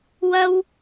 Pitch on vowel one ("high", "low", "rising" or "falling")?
high